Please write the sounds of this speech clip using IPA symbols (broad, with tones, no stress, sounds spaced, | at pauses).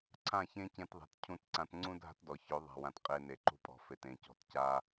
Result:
ǀʰ ã˦˨ ç ẽ˦ c ẽ˧ t ðˤ e̤˨ t cʰ ũ˧ t ǀ ã˧ t ŋ͡ǀ ũ˦ dʱ a̤˦ t d ɔ˨ ç ɵ˨˦ ðˤ a̤˨ w ã˨ t qʼ e˧ n e˨ ǃ ṳ˧ pʼ ɔ̤˨ f e˨ t ẽ˨ c ɔ̤˧ t c a˧